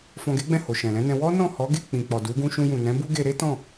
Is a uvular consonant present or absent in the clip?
absent